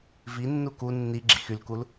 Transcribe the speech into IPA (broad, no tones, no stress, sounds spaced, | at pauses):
v i nː u k u nː i ɡ͡ǁ ḭ x y l k u l